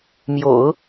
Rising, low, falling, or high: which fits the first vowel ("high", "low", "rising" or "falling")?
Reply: low